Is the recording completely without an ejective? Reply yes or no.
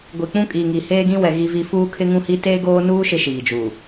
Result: no